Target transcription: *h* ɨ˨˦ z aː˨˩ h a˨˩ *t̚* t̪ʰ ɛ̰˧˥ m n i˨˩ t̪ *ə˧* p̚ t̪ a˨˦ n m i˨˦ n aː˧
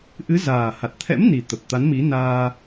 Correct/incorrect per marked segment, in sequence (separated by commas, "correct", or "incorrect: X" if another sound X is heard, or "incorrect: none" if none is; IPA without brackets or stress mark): incorrect: ʔ, correct, incorrect: ə˨˩